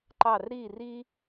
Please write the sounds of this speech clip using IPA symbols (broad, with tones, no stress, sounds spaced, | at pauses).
ǃ ɑ˦˨ r ɾ i˦˨ r i˦